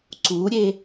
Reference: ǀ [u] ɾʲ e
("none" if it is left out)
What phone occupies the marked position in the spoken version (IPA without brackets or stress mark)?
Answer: u